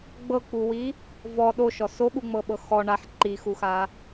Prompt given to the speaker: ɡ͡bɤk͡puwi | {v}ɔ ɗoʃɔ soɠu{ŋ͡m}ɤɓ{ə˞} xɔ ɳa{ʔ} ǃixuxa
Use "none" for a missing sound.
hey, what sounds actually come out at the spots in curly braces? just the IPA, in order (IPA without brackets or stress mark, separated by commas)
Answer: v, ŋ͡m, ɤ, ħ